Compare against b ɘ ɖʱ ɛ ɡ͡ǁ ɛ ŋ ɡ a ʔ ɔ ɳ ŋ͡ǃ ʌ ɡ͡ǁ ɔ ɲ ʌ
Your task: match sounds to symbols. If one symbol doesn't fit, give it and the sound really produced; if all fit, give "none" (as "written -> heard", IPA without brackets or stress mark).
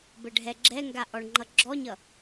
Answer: none